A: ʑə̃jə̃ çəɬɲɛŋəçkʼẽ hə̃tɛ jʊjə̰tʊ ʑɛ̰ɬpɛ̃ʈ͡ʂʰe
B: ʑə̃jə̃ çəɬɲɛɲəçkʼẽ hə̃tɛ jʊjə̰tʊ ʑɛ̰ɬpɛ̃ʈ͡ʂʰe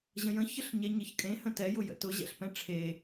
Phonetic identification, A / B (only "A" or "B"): B